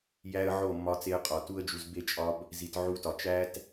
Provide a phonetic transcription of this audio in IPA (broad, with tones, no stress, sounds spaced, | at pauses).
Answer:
j æ˧ ə̯ ʕ o˦˨ mː ɒ˧ t͡s e˧ ə̯ qʼ ɒ˨ t u˧ ə̯ d͡ʒ u˨ z b e˦˨ t͡ʃʼ ɒ˧ b | z i˨ t ʕ u˦ t ɒ˧ t͡ʃ æ˦ t